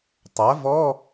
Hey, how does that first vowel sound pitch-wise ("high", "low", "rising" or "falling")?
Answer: rising